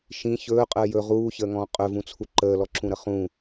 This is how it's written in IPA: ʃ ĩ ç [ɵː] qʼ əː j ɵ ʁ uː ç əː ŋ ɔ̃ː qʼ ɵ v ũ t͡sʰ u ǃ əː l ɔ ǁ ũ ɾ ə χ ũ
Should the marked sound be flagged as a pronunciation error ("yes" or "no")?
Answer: no